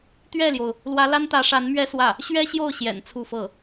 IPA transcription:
t̪ ɥ ɛ˥˩ l j o˩ ʊ̯ | l w ä˧˥ l a˥ n t̪ ä˧˥ ʂ a˧˥ n m ɥ ɛ˥ s w ä˥˩ | ɕ ɥ ɛ˥ ɕ j o˥˩ ʊ̯ ɕ j ɛ̰˨˩ n t͡sʰ u˥˧ f ɤ˥˩

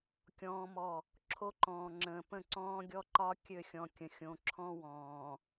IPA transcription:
kʲ ɔ̃ː˦ m ɔ˦˨ | ǁʰ o˦ ǃ ɔ̃ː˨ ŋ͡ǁ ə̃ː˨ p ə̃˦˨ ǀ ɔ̃ː˦ ɡʲ ɔ˦ ǃ ɒ˦ kʲ ø˦˨ xʲ ɔ̃˨ kʲ ə̃˨ xʲ õ˨ ǁʰ ɔ̃˦ w ɔ̃ː˨

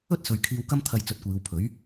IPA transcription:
ɵ˥ t̚ s ɵ˨ ɥ kʰ iː˧ w k ɐ˥ m t̪ʰ ɐ˧ j t͡s ɵ˨˥ t̚ kʷ iː˨˧ w pʰ ɵ˨˥ ɥ

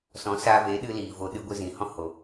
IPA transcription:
s ɔ̃˨˦ s aː˧ v eː˨˦ ɗ ɨ˧ l iː˨ v o˧ ɗ ɨ˧ ɡʷ ɨ˧ z ĩ˨ h ɔ̃˧ h o˨

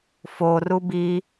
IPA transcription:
f o r u b i

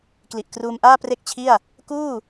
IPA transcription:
k l i˨˩ ʔ k r uː˧ m ʔ aː˥˩ p r e˥˩ k̚ t͡ɕʰ i˥˩ a̯ | k uː˥˩

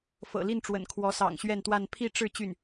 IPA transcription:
f ɤ̰˨˩ l i˥˩ n ʈ͡ʂ w ə̰˨˩ n kʰ w ɔ˧˥ s ɑ̰˨˩ ŋ ɕ ɥ ɛ˥˧ n t̪ w a˥˧ n pʰ i˥˧ ʈ͡ʂ ɻ̩˥˧ t͡ɕ y˥˩ n

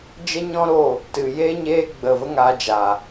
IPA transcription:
d͡ʒ ə˦ ɲ ɔ̃˦ ɾ o˦˨ | t ɨ˨ j eː˦ ɲ eː˦ ɡ͡b ə˦˨ v ə˦ ŋ a˧ d͡ʒ a˨

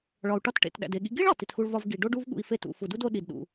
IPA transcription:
ɭ ɒ˩ u̯ ʈ ɒ˧ t ʈ ḛ˩ t ɗ æ̰˩ d e˩ ɠ ḭ˧ ɡ i˥ ɭ ɒ˩ t i˩ t x u˧ ɭ v ɒ˧ v ɡ i˩ ɖ o˥ ɖ u˥ v ɠ ṵ˧ i̯ f e˥ t ṵ˩ f u˩ d u˥ d o˧ ɗ i˩ d ɗ ṵ˩

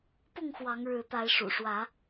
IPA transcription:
p ʊ˥˨ ŋ x w ɑ˨˦ ŋ ɻ ɻ̩˨˦ t̪ a˨˦ ɪ̯ ʂ ṵ˨˩ ʂ w ä˨˦

